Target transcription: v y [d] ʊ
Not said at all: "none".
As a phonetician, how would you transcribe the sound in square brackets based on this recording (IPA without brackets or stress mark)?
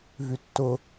tː